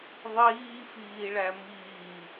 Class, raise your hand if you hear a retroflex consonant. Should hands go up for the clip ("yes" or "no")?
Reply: yes